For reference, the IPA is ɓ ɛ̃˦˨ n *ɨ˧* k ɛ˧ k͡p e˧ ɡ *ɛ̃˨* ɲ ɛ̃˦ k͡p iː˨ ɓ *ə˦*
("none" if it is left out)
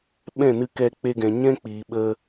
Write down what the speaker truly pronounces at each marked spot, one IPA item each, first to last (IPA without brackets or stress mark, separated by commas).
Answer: ɨ˧, ɛ̃˨, ə˧